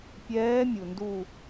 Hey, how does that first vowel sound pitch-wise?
rising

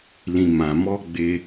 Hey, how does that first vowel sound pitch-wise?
low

